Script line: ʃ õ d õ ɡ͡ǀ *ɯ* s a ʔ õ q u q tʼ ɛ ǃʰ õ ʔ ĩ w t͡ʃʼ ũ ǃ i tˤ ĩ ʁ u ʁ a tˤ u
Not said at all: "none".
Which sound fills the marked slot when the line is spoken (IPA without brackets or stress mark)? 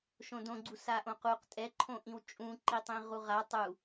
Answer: u